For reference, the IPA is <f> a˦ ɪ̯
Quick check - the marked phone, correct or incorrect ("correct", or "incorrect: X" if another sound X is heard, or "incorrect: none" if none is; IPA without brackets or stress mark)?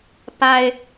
incorrect: p